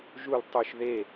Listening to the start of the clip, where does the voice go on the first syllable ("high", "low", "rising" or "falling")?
falling